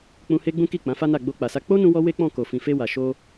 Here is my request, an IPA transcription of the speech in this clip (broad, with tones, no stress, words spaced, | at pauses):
k͡pũ˧he˦ɡ͡bũ˦ki˦˨ k͡pã˨˦fa˦na˦˨ ɡ͡bo˧k͡pa˨sa˧ k͡po˦nũ˧wɔ˧ we˦k͡pɔ̃˦˨ ko˨ fĩ˨fe˧wa˨ ʃo˧